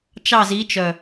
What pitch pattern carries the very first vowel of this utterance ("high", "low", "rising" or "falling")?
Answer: falling